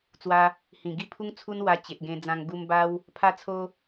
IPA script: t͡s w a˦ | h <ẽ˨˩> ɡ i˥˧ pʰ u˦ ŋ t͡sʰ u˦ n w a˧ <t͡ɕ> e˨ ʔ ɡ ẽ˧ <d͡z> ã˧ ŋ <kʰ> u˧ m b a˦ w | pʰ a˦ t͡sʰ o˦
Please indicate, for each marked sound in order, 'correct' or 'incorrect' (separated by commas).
incorrect, correct, correct, incorrect